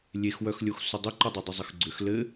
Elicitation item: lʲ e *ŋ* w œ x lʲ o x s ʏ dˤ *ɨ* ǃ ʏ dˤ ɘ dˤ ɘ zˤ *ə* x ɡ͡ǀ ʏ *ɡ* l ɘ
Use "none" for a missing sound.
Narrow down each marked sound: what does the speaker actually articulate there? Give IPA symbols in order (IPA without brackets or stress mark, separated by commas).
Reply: x, ʏ, ə, x